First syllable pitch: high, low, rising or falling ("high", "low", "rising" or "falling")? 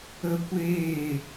high